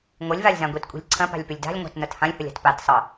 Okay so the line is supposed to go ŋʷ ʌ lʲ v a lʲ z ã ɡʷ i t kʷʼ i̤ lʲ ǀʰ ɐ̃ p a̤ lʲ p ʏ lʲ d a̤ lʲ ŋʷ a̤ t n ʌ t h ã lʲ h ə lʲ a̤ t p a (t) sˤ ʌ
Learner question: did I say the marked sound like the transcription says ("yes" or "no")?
yes